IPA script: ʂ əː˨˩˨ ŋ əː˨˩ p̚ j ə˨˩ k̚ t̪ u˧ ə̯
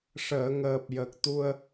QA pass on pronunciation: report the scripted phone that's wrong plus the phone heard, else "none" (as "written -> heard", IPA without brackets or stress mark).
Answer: none